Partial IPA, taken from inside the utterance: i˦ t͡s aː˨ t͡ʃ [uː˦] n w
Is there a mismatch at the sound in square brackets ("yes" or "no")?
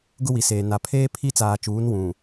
yes